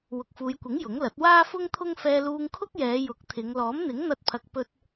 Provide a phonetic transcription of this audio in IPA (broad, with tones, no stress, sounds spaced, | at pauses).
w ʊ˨ k̚ f uː˨˧ j kʷ ɪ˨˥ ŋ j ʊ˨˥ ŋ l ɐ˨˥ t̚ w aː˥ f ʊ˥ ŋ t̪ʰ ʊ˥ ŋ f ɛː˧ l uː˧ ŋ kʰ ʊ˥ k̚ j ɛː˨˧ j ʊ˨˥ k̚ t̪ʰ ɪ˨˧ ŋ l ɔː˨˥ m n̪ ɪ˨˥ ŋ n̪ ɐ˧ t̚ pʰ ɐ˨ k̚ p ɵ˧ t̚